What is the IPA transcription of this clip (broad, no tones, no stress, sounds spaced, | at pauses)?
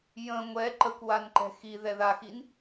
j ə̃ ŋʷ ɛ ǃ ə kʷ w a n ǃ ɛ̤ x i ð ɛ ð a x i n